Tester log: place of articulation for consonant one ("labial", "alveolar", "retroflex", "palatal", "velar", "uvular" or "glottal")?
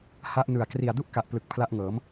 glottal